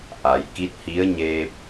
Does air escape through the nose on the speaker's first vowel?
no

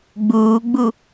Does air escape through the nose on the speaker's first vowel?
no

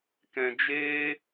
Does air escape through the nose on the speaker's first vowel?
yes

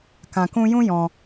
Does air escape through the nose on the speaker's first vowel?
yes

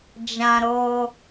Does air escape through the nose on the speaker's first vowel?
yes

